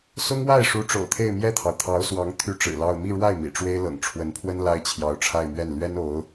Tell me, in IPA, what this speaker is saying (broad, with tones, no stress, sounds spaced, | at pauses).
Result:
s ʊ˥ ŋ w a˥˩ ɪ̯ ʂ u˧˥ ʈ͡ʂ o̰˨˩ ʊ̯ t̪ʰ e˥˧ ɪ̯ m j ɛ˥˩ t̪ʰ ɑ˩ ʊ̯ t̪ʰ ɑ˧˥ ʊ̯ s w ɑ˧˥ ŋ t̪ʰ y˥ ʈ͡ʂ ɻ̩˨˩ l ɑ˥˧ ʊ̯ m i˥˧ ɻ w a˥˩ ɪ̯ m ḭ˨˩ ʈ͡ʂ w e˥ ɪ̯ l ɤ̰˨˩ ŋ ʈ͡ʂʰ w ə˧˥ n pʰ w ə˥ n l a˥ ɪ̯ t͡ɕʰ j ɑ˧˥ ʊ̯ ʈ͡ʂʰ a˥˧ ɪ̯ m ɥ ɛ˥˩ n l ɥ ɛ˥ n o˧˥ ʊ̯